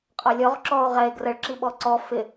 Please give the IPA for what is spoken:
qʼ ɒ lʲ ɔ ʁ ǁ ɔ o̯ ʁ ɛ e̯ ɡ r ə ɭ ǁ i ɓ ɔ ǀ ɔ f ɪ

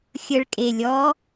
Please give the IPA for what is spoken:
xʲ ə ɭ kʼ e lʲ ɔ

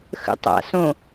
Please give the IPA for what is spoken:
x ə̰ tˤ a̰ s õ

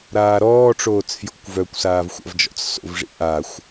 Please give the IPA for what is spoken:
ɾ aː ɾ ɔː ʈ͡ʂ oː t͡s f j o̰ kʷ v œ kʷ s aː v xʷ a̰ v d͡ʒ ɔ̰ t͡s s o̰ v ʐ ḭ ʔ a xʷ

